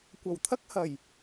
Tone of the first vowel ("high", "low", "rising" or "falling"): low